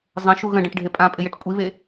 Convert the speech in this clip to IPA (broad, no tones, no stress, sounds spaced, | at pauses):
zˤ ə̃ ʃ u ɣ ə̃ ɖ ə̃ ʈ ɖʱ e pʼ ã pʼ ɪ j e ʈ kʷʼ i β e